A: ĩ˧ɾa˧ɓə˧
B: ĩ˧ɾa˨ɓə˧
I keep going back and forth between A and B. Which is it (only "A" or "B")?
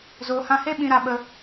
A